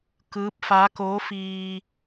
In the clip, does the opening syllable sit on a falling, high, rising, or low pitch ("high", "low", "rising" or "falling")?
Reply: rising